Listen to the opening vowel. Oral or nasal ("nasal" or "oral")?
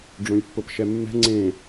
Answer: nasal